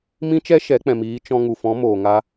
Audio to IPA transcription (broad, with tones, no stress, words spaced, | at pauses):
mĩ˧t͡ʃɛ˧ ʃɛ˨˦k͡pɛ̃˨miː˨˦ t͡ʃɔ̃˧ ŋu˨fɔ̃˨˦moː˨ŋa˧